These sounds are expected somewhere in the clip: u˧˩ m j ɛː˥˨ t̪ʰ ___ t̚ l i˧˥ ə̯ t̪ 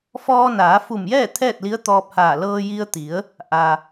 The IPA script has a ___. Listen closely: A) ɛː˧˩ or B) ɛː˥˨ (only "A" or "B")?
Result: B